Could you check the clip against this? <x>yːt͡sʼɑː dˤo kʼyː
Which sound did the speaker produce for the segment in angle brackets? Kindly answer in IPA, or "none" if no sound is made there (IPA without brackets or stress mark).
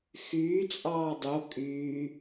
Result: x